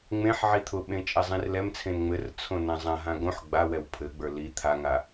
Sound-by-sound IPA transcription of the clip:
ŋ͡m ẽ ħ ʕ i t̪ʰ ʊ ɓ ẽ t͡ʃʼ ɛ zˤ ĩ r l ɛ m t͡sʰ ẽ n ŋ͡m ɘ r t͡sʰ õ n ã zˤ ã ɦ ã ɡ õ ħ ɡ͡b a w ɛ w pʰ ɘ ɡ͡b ə˞ l i t̪ʰ a ŋ a

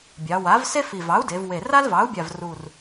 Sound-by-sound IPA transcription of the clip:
bʲ ɑ˩˧ w a˩˥ v s e˥ f i˨˩ v ɑ˩˥ u̯ d e˩˧ v w e˨˩ r a˥ l v ɑ˩˥ u̯ bʲ a˨˩ v r u˨˩ r

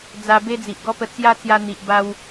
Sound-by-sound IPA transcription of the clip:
d͡z a˧ b e˦ d͡z i˨ ʔ ɡ ɔ˦ p ə˧ t͡s j a˦ t͡s j a˧ n̪ i˨ ʔ b a˧ w

